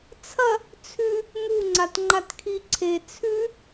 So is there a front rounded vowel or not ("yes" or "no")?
no